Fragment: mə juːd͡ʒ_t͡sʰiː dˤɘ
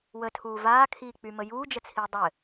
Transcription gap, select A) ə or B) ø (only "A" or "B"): A